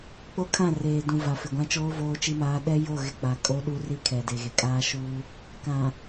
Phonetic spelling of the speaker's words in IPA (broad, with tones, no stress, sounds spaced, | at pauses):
k͡p o˦ kʰ ã˦˨ r eː˨ d ũ˨ v a˨ f ɪ˨ ɡʷ ã˦ t͡ʃ oː˦ v oː˦ t͡ʃ i˦ m aː˦ ɗ ɛ˦ j o˦˨ ɣ ɪ˦ k͡p a˨ kʼ o˦ ɗ u˦ r i˦ kʰ ɛ˨ d e˨ ɣ e˨ kʼ aː˦ ʃ uː˦ | k ã˨